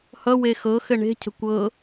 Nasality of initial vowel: oral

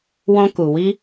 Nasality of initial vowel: nasal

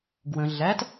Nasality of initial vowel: nasal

